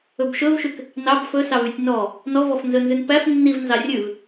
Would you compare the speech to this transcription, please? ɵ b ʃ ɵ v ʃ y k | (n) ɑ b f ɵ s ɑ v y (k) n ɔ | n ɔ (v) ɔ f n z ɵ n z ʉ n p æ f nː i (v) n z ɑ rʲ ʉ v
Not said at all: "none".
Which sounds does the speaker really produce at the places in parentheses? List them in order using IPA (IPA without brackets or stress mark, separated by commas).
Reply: n, tʲ, v, v